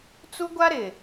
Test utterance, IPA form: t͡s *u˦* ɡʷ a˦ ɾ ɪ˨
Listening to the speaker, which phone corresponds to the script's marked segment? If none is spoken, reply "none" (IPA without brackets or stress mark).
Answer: u˦